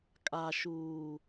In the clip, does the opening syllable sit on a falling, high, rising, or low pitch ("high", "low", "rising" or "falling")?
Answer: low